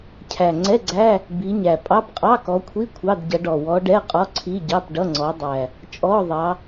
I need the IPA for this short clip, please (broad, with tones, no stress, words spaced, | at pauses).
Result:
cʰæ˨˩ŋ͡ǀɛ˧˥˧ɡ͡ǀæ˧˥˧ | bi˨˦ɲæ˨˩ pʼɑ˧˥˧p qʼɑ˧˥˧kɔ˨˦kʷʰi˧˥˧ kʷʰɑ˧˥˧dɟʌ˨˦ ɖɔ˨˩wɔ˨˦ɖɛ˧˥˧ qʼɔ˧˥˧ǀʰi˧˥˧ɟɑ˧˥˧p ɖʌ˧˥˧ŋ͡ǀɔ˨˦dˤæ˨˩ | t͡ʃʼɔ˧˥˧ ðˤɑ˨˦